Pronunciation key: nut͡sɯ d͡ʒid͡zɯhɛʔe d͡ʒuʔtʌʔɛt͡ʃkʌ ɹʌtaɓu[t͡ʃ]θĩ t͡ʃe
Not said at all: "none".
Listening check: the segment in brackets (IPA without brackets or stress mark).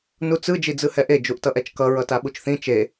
t͡ʃ